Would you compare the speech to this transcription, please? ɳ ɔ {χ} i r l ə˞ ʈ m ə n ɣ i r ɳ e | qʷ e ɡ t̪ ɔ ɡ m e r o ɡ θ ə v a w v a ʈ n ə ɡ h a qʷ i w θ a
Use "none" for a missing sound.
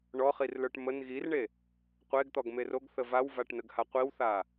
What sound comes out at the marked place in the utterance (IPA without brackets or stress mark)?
χ